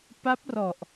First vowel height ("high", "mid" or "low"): low